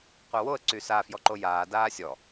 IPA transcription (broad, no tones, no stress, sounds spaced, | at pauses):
qʷ œ w o ə̯ ǀ y s a f j ɔ ǃ o j aː d aː sʲ ɔ